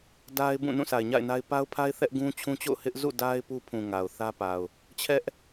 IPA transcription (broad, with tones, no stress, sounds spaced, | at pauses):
d a˦ ɪ̯ b ũ˦˨ n ũ˦˨ sʰ a˨ ɪ̯ ɲ a̰˦˨ ɪ̯ n a˦ ɪ̯ p a˦ ʊ̯ pʰ a˦ ɪ̯ θ ɛ˦ ʔ ɡ ũ˦ t͡ɕʰ ũ˦ t͡ɕ o̰˦˨ ʊ̯ h ɪ˦ ʔ z ṵ˦˨ d a˦ ɪ̯ p u˦ pʰ ũ˨ ŋ a˨ ʊ̯ θ ä˦ p a˨ ʊ̯ | t͡ɕʰ ɛ˦ ʔ